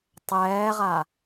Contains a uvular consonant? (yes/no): yes